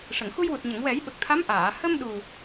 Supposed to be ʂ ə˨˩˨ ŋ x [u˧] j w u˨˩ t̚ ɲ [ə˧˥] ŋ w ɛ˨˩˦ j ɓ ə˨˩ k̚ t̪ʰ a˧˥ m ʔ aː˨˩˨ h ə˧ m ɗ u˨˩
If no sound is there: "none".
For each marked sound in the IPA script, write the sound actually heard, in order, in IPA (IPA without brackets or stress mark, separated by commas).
u˧, ə˨˩˨